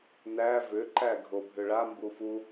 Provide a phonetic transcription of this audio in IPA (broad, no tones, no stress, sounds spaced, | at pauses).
n æ v ʏ ǃ æ ɡʱ o bʱ ʏ ɭ a m b u f u